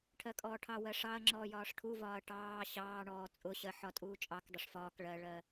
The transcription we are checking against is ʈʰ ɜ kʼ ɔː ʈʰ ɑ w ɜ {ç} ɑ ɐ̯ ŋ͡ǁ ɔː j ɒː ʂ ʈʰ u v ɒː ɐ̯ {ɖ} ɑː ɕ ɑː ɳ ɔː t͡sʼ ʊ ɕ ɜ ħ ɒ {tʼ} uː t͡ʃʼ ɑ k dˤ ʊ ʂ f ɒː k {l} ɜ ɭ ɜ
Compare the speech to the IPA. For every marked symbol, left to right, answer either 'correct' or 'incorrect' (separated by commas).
incorrect, incorrect, correct, incorrect